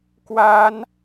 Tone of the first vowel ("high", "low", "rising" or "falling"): high